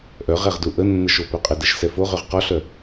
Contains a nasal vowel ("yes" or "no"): no